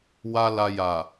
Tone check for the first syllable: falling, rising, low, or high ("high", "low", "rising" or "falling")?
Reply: high